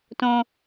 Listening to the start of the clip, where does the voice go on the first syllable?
high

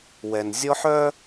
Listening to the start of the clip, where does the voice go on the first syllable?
low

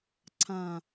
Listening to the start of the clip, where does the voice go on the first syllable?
falling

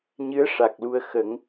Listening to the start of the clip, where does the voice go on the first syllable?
rising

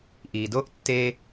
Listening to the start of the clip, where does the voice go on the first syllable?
low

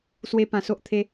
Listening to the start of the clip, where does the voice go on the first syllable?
high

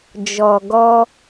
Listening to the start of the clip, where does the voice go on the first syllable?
low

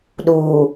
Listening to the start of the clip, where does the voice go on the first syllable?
low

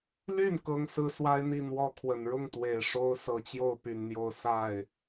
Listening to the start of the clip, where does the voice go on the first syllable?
falling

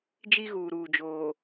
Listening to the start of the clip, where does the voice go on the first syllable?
high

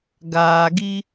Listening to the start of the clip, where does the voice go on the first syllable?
low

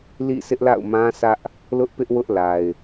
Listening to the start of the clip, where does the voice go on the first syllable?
falling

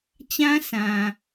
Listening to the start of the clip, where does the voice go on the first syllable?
high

